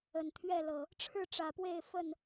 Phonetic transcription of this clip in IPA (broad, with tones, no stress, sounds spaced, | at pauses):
ə˨˩ n t̪ʰ ɥ ɛ˥˨ l ɤ˨˩ | ʈ͡ʂʰ ɻ̩˥˨ ʈ͡ʂ ä˨˩ p w e˥˨ ɪ̯ f ə˥˨ n